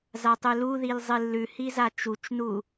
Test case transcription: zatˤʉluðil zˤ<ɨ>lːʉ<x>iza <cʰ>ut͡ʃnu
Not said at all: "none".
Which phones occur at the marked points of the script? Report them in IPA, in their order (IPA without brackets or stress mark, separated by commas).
ɨ, h, t͡ʃ